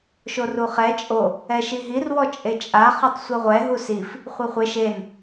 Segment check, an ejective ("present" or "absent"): present